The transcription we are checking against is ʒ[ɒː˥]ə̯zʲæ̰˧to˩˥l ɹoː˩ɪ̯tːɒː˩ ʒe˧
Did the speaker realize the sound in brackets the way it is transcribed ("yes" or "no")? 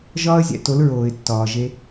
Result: yes